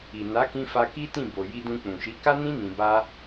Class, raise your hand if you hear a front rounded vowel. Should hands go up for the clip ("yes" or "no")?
no